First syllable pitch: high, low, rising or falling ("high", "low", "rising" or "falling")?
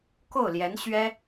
falling